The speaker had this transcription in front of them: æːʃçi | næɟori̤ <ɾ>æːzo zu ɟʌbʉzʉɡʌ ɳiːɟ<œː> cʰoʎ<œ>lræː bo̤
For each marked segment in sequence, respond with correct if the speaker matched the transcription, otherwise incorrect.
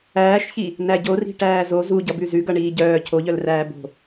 incorrect: ʈ, correct, correct

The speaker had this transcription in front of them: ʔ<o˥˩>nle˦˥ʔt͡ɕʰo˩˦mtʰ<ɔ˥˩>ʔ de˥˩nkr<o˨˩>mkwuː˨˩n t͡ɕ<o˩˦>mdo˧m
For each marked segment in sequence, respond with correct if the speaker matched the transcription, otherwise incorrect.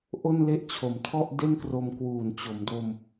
correct, correct, incorrect: o˧, correct

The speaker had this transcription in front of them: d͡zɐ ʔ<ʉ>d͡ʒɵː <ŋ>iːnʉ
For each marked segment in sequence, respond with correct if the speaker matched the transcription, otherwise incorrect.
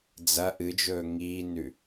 incorrect: ɨ, correct

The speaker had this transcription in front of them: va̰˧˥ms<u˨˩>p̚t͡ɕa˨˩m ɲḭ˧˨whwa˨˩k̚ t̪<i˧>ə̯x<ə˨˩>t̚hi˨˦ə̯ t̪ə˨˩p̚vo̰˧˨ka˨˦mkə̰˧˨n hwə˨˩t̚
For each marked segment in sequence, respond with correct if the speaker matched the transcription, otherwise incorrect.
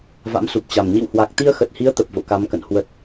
correct, correct, correct

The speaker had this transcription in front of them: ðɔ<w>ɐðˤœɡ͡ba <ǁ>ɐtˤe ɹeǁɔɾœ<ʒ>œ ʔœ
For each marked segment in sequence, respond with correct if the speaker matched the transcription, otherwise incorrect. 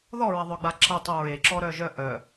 incorrect: ɹ, correct, correct

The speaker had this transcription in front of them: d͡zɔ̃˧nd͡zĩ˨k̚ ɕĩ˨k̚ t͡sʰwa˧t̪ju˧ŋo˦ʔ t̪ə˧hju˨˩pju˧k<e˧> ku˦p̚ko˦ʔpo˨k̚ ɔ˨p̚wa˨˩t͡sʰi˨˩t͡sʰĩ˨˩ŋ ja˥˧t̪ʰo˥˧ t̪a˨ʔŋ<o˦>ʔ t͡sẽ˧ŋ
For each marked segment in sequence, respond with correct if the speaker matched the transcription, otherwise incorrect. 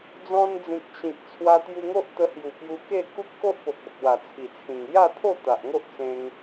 incorrect: e˥˧, correct

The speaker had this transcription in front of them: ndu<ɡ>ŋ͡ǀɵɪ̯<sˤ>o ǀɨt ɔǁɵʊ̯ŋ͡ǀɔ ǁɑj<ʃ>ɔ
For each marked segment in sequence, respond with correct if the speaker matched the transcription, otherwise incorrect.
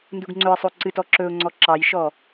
correct, correct, correct

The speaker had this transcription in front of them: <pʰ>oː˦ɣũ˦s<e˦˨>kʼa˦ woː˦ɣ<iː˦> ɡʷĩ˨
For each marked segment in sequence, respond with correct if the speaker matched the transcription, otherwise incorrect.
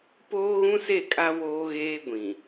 incorrect: p, correct, incorrect: eː˦

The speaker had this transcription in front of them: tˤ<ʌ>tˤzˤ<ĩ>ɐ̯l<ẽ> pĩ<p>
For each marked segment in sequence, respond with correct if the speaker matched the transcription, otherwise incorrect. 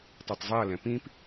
correct, incorrect: i, incorrect: ɛ̃, correct

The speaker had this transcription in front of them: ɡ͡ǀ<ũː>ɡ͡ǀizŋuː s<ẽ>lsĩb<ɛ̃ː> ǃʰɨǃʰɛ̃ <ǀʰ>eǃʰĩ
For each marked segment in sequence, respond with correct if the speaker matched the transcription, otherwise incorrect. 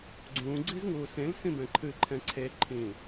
correct, correct, incorrect: ɛ̃, correct

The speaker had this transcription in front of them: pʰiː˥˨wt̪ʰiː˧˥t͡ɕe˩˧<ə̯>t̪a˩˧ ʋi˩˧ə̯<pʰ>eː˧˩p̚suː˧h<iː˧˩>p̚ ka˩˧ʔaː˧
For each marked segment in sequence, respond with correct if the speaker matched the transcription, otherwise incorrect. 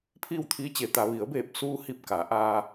incorrect: none, incorrect: b, incorrect: i˧˩

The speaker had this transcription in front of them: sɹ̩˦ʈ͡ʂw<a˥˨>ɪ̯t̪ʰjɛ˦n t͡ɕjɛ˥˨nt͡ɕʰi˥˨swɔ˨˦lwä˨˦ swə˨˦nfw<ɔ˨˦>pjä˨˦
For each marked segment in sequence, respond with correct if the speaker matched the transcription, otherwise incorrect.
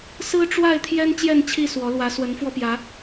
correct, incorrect: ɔ˧

